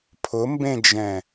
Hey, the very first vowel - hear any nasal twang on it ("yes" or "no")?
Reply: no